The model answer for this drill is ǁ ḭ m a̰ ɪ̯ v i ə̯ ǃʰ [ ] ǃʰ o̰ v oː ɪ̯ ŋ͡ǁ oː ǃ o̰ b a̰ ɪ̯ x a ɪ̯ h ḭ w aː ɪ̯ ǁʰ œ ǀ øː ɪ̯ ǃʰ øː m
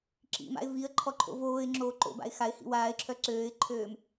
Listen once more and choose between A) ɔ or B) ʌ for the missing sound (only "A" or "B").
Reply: A